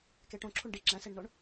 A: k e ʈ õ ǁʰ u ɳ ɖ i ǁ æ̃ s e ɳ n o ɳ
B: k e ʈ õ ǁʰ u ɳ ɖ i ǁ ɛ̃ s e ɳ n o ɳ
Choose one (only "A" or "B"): A